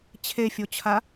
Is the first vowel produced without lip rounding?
yes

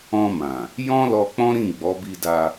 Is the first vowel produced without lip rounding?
no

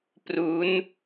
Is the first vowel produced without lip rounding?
no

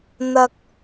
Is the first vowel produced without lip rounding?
yes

